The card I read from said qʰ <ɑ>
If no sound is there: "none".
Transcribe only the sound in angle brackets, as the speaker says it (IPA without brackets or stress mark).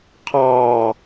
ɑ